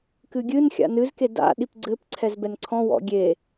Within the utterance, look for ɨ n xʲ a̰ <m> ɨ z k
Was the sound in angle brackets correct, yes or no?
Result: no